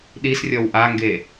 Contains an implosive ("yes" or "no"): yes